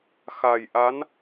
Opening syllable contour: low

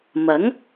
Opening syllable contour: rising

